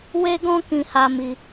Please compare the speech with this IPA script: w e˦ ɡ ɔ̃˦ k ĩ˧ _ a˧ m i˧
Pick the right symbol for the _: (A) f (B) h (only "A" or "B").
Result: B